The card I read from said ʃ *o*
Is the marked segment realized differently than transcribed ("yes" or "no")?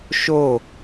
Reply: no